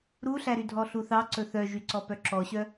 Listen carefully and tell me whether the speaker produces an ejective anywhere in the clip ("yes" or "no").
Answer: no